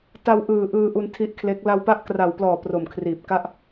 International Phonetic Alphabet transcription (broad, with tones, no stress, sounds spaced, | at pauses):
t a˧ w ʔ ɯː˨˩ ʔ ɯː˧ ʔ u˧ n tʰ i˦˥ ʔ kʰ l e˦˥ k̚ l a˧ w p a˦˥ ʔ k r a˨˩ w p l ɔː˨˩ p r o˨˩ m kʰ r iː˨˩ p̚ k a˥˩ ʔ